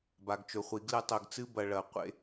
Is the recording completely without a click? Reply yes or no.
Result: yes